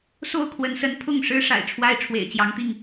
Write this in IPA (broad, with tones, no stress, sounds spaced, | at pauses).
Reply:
s o˥˨ ʊ̯ kʰ w ə˨˦ n s ə˨˦ n pʰ ʊ˥˨ ŋ ʂ ɻ̩˦ ʂ a̰˨˩ ɪ̯ ʈ͡ʂʰ w a˦ ɪ̯ ʈ͡ʂʰ w ḛ˨˩ ɪ̯ t͡ɕ j ɑ˨˦ ŋ t̪ i˥˨ ŋ